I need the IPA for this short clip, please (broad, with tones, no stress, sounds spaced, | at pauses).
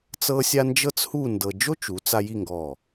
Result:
t͡s ɤ˥ sʲ a˥ n d͡ʒ ɤ˥ t͡s h u˥˧ n d ɤ˧ d͡ʒ o˥ t͡ʃ u˩˧ t͡s a˧ j i˥˧ ŋ ɡ ɔ˧˩